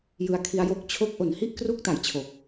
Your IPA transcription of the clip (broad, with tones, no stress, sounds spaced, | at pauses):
j ɯ˧ a̯ kʰ i˦˥ a̯ j o˦˥ k̚ t͡ɕʰ o˥˩ k̚ ʔ o˨˩ n h i˥˩ ʔ k r u˥˩ k̚ t a˨˩ j t͡ɕʰ o˨˩ k̚